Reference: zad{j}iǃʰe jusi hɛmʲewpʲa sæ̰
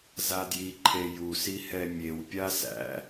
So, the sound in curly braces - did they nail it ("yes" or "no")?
yes